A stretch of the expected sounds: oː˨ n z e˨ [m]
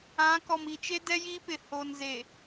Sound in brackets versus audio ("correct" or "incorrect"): incorrect